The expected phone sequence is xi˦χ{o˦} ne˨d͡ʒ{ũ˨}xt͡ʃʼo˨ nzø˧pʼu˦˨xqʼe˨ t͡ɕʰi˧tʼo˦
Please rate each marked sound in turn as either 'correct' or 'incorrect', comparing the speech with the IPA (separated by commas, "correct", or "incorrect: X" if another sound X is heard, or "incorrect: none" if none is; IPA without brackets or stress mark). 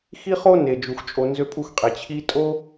correct, incorrect: u˨